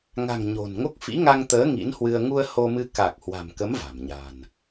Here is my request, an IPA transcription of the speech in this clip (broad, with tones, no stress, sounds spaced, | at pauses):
ŋ a̤˨˩ ŋ ɲ o̤˨˩ n ŋ o˦˥ k̚ f ḭ˧˥ ŋ a˧ ŋ t̪ əː˨˦ ŋ ḭ˧˥ n h w ɨ˧ ə̯ ŋ u˧ ə̯ h o˧ m ɨ˧ k a˨˩ k̚ h w a̤˨˩ m k ə˨˦ m v a̤˨˩ m ɲ a̤˨˩ n